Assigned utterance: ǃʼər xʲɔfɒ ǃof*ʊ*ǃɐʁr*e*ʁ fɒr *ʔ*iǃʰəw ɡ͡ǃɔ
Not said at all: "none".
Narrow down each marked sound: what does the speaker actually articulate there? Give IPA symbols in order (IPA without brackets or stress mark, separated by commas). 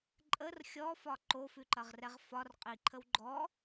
ʉ, ɛ, qʼ